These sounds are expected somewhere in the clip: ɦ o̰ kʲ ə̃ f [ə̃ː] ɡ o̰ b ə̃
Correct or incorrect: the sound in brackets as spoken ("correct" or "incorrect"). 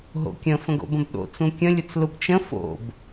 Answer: incorrect